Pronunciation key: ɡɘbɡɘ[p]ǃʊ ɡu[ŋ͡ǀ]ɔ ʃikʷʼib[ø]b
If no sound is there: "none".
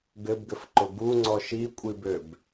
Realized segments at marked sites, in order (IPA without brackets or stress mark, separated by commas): f, ŋ͡ǀ, ø